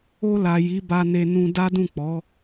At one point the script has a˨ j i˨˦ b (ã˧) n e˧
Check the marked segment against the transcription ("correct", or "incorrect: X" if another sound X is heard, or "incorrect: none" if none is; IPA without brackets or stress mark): incorrect: a˧